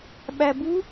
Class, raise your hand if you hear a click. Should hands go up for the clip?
no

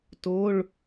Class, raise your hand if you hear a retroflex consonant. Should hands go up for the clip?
yes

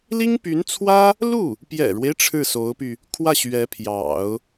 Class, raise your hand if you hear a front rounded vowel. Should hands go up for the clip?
yes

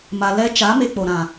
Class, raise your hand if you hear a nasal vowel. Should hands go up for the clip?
yes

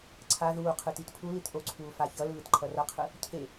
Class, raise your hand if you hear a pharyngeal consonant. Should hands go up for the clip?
no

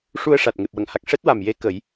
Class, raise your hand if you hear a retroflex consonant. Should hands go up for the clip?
yes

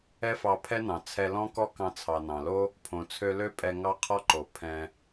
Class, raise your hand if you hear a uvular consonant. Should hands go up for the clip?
yes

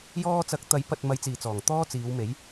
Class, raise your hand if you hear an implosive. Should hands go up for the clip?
no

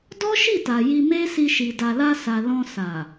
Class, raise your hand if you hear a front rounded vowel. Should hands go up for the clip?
no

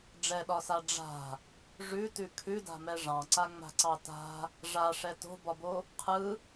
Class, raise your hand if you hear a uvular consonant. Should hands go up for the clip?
yes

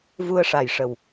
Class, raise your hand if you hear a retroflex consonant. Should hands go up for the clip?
yes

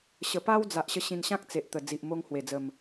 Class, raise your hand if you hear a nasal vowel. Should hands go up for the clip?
yes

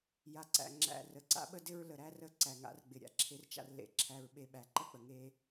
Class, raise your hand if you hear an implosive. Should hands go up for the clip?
yes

